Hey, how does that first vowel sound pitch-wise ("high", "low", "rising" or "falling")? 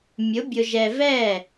rising